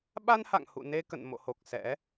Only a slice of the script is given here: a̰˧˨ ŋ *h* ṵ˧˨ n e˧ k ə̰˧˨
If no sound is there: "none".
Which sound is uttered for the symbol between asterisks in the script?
h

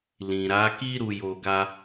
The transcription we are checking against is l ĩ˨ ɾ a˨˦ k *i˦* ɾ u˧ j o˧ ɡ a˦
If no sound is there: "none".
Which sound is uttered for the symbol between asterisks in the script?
i˦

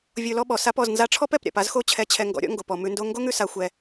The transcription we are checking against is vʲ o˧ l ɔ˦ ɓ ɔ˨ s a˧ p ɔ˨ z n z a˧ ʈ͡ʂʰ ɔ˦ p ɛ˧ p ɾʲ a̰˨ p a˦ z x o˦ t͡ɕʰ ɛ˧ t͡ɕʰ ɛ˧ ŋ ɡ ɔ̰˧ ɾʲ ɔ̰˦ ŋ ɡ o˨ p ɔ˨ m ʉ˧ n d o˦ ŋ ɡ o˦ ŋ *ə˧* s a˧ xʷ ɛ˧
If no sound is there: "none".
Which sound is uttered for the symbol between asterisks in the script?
ʉ˧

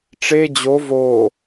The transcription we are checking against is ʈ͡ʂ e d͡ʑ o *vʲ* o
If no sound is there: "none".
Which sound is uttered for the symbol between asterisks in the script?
v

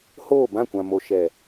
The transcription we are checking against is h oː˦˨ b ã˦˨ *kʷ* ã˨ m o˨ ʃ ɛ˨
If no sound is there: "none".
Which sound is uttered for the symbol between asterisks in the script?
kʷ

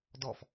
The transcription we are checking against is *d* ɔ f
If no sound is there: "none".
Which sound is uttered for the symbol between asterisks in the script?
d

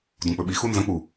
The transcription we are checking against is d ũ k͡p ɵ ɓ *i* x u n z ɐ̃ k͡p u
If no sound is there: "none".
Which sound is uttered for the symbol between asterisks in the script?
i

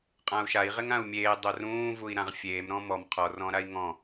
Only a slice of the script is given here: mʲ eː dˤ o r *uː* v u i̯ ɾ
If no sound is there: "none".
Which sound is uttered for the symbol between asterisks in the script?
ũː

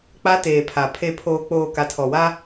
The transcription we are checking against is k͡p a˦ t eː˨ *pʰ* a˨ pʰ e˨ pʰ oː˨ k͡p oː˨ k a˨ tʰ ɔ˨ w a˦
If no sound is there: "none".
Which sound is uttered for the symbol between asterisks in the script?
pʰ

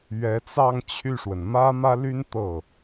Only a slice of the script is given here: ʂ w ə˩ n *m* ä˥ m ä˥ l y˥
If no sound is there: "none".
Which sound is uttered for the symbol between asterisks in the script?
m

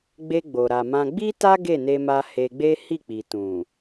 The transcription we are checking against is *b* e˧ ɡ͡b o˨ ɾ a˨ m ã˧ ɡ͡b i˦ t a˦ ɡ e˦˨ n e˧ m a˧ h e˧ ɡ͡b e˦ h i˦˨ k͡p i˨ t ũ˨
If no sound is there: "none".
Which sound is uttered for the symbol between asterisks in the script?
ɡ͡b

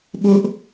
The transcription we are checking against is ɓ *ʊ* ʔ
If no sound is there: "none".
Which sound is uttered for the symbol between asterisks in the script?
ʊ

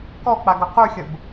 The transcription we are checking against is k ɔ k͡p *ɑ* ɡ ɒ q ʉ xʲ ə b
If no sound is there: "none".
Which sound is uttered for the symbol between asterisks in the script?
a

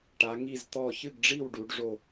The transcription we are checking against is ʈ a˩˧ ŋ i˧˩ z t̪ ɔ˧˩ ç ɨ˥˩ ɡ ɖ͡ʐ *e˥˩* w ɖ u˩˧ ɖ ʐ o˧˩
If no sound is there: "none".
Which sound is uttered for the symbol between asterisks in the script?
i˥˩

